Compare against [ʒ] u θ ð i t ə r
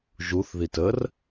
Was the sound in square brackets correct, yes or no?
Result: yes